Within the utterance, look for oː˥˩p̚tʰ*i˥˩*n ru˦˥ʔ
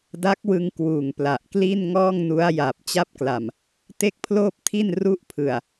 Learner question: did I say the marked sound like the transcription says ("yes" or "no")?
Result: yes